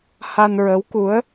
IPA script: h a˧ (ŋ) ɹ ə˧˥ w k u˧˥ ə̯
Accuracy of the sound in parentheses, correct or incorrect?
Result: incorrect